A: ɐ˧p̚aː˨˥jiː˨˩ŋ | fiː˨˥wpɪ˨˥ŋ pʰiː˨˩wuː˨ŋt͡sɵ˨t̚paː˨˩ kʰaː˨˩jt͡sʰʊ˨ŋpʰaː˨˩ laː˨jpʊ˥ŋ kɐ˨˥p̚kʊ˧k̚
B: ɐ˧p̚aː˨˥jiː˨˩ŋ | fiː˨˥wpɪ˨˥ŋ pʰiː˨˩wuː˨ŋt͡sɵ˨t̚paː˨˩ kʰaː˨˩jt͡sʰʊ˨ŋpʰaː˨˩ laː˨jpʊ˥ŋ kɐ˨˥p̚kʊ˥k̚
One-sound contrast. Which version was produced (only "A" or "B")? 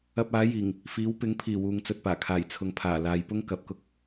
B